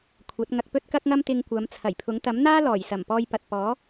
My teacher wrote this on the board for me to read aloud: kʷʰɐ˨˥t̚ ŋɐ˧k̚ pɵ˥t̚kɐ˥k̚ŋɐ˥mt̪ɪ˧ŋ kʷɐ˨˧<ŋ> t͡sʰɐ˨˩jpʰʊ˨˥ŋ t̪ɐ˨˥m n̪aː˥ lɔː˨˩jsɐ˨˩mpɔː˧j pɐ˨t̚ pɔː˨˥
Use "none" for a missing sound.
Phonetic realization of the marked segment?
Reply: m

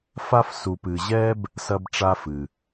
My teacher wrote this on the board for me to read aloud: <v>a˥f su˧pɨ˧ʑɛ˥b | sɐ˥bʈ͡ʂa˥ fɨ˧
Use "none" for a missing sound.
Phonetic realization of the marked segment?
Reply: f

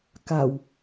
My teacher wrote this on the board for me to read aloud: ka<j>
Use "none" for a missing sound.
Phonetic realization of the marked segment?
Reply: w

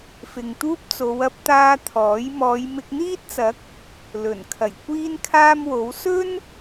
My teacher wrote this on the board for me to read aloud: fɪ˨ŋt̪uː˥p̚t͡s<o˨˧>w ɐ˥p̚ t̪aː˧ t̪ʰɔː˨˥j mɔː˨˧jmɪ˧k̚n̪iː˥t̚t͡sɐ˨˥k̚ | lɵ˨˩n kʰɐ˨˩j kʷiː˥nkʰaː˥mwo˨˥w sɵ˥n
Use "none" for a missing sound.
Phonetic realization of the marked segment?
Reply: o˨˧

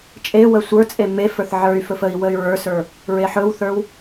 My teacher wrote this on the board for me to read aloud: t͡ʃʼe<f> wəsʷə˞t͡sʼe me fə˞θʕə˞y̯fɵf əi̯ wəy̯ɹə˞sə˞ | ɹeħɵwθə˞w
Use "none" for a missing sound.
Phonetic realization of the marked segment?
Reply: none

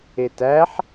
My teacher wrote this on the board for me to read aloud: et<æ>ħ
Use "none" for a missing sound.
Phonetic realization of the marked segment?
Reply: æ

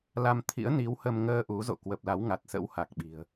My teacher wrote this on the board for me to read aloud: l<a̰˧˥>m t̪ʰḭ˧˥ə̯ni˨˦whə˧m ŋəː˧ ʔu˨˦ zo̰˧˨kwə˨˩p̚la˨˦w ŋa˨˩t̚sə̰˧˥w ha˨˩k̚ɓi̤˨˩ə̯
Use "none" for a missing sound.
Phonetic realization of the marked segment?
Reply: a˧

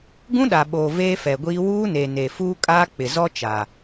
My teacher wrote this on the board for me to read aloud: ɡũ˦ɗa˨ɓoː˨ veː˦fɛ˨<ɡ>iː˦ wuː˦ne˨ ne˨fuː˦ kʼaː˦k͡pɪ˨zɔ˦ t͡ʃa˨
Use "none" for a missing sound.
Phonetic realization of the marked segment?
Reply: ɡʷ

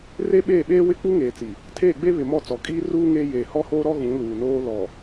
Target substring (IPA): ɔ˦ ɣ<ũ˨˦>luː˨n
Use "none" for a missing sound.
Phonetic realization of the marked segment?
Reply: ũ˨˦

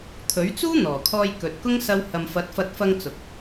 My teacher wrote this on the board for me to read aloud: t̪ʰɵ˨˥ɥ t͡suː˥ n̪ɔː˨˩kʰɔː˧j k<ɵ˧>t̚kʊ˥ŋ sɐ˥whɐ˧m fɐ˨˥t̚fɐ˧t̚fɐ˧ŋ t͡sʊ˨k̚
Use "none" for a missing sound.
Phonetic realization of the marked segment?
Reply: ɵ˨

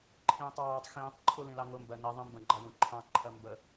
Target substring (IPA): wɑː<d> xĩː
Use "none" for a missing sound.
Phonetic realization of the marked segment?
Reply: tˤ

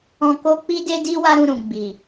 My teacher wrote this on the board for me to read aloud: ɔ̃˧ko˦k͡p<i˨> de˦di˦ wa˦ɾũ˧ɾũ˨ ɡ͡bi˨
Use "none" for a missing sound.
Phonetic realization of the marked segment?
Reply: i˦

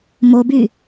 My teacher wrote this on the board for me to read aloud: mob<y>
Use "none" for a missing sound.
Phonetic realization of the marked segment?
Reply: y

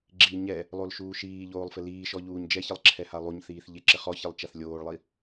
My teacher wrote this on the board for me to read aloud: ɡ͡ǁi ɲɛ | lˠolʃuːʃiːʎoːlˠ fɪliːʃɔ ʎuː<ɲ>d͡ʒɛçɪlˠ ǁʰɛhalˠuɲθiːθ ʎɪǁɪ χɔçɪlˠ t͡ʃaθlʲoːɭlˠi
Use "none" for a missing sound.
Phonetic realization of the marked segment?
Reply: ɲ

